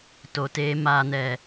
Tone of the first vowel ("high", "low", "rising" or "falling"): low